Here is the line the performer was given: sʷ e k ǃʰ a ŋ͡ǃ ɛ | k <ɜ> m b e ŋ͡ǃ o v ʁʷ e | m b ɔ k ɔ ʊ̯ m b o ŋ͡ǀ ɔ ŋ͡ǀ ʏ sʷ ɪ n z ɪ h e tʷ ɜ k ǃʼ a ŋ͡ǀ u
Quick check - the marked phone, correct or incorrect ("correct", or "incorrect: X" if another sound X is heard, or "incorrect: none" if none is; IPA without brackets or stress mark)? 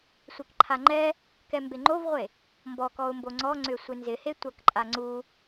incorrect: ɛ